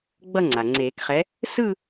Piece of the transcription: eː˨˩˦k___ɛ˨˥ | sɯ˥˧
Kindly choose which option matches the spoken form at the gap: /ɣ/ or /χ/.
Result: χ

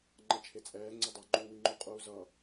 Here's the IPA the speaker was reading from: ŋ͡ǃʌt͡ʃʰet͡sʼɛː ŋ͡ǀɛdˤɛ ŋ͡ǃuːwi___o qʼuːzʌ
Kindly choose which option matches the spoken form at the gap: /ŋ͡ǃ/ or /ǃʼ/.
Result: ŋ͡ǃ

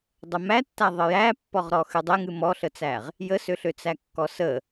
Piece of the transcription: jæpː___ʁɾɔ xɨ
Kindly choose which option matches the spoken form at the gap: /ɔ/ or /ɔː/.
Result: ɔ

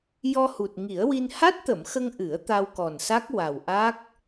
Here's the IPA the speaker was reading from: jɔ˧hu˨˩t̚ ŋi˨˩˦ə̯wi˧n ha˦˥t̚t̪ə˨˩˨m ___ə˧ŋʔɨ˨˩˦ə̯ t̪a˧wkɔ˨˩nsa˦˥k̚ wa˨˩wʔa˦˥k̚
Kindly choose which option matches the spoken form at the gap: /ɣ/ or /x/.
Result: x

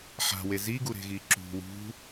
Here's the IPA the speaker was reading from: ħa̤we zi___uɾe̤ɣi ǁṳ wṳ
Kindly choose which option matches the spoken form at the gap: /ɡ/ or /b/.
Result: ɡ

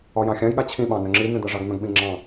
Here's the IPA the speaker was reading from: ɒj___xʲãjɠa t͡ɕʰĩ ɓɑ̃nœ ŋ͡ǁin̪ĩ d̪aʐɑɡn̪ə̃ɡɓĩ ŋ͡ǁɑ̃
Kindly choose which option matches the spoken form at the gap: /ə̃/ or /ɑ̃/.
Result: ɑ̃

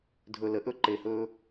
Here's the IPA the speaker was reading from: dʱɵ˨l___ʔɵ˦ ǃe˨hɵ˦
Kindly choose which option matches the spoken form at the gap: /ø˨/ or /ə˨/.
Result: ə˨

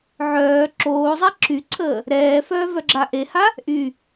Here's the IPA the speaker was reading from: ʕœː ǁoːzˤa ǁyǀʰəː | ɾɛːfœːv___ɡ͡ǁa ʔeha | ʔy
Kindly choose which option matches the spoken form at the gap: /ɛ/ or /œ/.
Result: œ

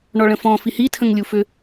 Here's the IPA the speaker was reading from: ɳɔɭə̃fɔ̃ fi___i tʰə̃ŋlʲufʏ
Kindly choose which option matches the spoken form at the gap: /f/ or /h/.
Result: h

